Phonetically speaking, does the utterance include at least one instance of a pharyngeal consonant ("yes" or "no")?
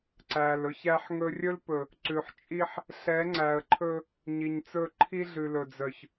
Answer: yes